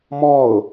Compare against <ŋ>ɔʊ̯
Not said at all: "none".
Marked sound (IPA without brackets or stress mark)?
m